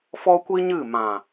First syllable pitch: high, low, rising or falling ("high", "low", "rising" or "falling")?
high